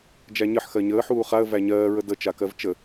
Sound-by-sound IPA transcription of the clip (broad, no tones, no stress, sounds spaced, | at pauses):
d͡ʒ æ ɲ ə ħ x ɜ ɲ əː ħ uː χ a ə̯ v æ ɲ ɜː ɹ ə d ə t͡ʃ a k ɜ v t͡ʃ ə